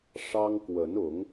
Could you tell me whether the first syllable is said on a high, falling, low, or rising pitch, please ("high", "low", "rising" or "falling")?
high